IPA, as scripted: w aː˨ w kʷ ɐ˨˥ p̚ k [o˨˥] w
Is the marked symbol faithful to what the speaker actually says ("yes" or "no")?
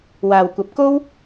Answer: no